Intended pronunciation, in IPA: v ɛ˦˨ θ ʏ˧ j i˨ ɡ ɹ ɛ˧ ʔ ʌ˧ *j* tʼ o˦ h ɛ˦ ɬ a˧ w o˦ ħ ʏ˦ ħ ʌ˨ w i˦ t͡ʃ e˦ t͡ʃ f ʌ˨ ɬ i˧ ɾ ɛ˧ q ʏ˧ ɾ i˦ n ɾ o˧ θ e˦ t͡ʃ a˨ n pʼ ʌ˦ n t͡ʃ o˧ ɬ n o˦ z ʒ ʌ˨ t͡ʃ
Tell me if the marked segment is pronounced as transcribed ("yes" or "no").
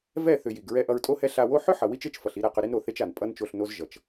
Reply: no